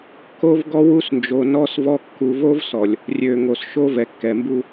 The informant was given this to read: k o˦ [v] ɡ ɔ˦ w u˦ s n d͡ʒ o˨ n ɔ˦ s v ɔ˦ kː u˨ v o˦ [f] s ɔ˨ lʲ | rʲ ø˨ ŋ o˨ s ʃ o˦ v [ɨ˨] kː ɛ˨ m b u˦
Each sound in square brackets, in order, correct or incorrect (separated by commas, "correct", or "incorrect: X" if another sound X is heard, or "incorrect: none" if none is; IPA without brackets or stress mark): correct, incorrect: v, incorrect: ɛ˨